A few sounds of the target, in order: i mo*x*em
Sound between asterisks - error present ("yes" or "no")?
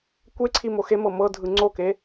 no